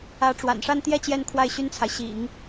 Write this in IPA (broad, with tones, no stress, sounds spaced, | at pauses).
ä˧˥ ʈ͡ʂ w a̰˨˩ n ʂ a˥˧ n t̪ j ɛ˥˧ t͡ɕ j ɛ˥˧ n kʰ w a˥˩ ɪ̯ ɕ y˥ n t͡sʰ a˨ ɪ̯ ɕ ḭ˨˩˦ ŋ